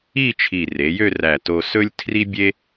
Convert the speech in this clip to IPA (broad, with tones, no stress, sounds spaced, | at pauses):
i˥˧ t͡ʃʰ i˧˩ r e˩˧ j ø˥˧ r æ˧˩ t o˧ s ɵ˥ lʲ tʰ r i˥ bʲ e˥